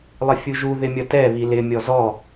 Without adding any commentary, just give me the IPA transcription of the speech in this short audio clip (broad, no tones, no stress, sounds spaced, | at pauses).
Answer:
lˠ ɪ fʲ u ʒ u ð ɪ mʲ ʌ t ɛ β i l ɪ mʲ ɔ z ɔ